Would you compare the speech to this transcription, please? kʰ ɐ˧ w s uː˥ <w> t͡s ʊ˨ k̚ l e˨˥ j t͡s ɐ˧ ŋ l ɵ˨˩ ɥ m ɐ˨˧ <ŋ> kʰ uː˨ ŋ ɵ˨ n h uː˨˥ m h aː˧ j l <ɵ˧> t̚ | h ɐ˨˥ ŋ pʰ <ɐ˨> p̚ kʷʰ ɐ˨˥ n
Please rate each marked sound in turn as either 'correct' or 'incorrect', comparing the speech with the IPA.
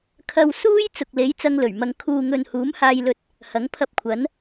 incorrect, correct, correct, incorrect

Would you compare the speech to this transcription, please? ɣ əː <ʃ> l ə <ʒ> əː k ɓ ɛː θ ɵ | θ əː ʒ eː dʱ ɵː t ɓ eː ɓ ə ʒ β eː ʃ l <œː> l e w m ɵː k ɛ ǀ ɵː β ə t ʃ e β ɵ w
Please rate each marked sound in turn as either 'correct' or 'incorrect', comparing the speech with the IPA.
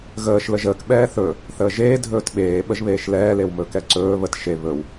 correct, correct, incorrect

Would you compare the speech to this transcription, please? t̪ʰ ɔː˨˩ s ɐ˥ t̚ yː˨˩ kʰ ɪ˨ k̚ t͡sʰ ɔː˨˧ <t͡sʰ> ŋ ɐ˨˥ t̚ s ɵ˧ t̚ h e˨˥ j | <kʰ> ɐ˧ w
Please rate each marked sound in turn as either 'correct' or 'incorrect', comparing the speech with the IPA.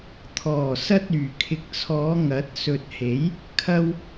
incorrect, correct

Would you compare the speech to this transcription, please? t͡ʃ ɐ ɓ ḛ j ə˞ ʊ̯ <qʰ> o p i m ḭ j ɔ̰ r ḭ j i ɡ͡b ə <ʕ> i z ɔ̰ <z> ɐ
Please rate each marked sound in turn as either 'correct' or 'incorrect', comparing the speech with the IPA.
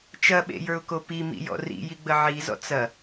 incorrect, correct, incorrect

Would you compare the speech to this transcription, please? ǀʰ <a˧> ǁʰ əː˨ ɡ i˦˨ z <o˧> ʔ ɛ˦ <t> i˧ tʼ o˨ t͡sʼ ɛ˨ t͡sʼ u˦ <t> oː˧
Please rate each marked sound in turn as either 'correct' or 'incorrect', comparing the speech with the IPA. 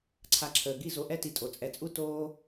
correct, correct, correct, correct

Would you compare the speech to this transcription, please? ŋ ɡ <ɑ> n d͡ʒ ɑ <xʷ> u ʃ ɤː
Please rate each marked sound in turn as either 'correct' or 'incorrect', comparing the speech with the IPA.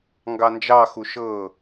correct, incorrect

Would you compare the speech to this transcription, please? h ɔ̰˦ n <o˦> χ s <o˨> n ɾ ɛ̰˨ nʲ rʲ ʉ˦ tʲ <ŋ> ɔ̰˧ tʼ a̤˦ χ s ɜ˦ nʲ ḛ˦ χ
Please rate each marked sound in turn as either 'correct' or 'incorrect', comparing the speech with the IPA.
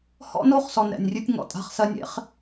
correct, incorrect, correct

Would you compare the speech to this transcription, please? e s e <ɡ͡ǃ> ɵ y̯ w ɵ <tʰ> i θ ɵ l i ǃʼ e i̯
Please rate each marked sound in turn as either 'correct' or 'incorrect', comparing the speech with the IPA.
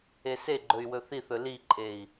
correct, incorrect

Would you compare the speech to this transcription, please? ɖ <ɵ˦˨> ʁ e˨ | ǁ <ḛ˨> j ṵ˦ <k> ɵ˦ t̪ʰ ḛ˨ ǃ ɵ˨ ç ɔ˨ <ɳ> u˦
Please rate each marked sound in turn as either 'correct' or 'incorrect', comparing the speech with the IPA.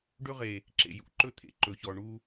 incorrect, correct, incorrect, correct

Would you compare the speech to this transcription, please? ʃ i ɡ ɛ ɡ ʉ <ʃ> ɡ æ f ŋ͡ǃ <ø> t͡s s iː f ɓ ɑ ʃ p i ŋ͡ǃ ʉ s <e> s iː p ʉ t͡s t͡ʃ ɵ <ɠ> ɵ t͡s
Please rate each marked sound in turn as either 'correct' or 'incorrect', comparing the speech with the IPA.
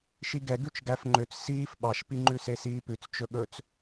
incorrect, correct, correct, correct

